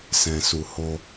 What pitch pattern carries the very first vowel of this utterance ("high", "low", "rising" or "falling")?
low